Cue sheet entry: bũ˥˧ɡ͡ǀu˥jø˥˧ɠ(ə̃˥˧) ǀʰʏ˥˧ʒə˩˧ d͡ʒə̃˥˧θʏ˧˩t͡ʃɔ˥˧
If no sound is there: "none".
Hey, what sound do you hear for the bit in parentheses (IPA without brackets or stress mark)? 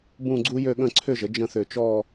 ə̃˥˧